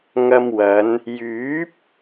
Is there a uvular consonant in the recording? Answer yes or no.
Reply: no